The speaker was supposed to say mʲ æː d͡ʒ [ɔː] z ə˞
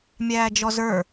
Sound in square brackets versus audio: incorrect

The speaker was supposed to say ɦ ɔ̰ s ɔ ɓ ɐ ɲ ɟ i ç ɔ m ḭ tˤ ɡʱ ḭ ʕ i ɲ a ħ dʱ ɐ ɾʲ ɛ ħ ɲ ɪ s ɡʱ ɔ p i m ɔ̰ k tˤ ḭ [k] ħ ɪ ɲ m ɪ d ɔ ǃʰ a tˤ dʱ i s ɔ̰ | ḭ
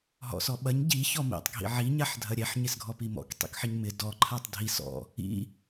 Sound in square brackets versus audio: correct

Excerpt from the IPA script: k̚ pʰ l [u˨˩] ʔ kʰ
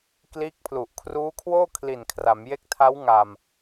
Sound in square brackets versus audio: correct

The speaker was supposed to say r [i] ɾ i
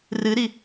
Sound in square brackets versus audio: incorrect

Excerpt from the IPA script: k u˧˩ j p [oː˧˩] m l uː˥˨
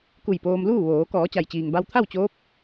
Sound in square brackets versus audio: incorrect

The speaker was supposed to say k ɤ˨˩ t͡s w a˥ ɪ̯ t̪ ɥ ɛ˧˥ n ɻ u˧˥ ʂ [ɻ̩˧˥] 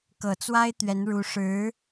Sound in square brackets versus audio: correct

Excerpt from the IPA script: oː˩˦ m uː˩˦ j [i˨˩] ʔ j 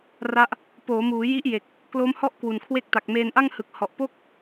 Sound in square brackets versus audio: incorrect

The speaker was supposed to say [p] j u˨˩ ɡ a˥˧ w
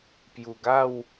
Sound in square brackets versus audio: correct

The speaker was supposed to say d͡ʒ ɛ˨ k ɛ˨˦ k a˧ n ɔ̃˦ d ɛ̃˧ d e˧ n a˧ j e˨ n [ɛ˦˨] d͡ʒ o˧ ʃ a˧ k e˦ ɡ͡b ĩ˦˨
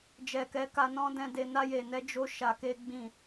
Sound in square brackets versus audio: incorrect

